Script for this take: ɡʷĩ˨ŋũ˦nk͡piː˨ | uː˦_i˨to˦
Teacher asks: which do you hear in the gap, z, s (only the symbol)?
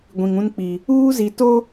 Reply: z